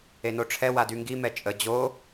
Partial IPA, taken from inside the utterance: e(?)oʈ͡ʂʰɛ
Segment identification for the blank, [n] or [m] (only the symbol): n